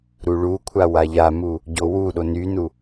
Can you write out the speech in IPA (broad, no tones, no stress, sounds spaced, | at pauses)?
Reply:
ɾ u ɭ u kʷʰ a w a ʎ a m u | ɟ o w u ɗ o n y n u